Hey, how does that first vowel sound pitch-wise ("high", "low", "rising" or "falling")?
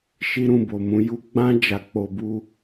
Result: high